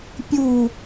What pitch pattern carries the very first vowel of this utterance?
falling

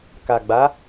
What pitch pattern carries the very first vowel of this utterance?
low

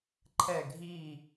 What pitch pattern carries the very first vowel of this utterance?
falling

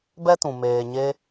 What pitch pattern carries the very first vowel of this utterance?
high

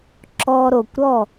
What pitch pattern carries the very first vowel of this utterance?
high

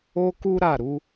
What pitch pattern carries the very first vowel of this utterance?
high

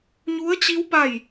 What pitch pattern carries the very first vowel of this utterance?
rising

